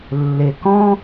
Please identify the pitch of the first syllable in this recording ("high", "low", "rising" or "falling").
low